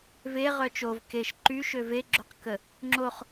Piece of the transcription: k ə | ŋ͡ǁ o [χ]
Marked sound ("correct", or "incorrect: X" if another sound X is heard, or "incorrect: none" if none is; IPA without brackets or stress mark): correct